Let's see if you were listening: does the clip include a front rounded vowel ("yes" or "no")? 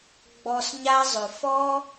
yes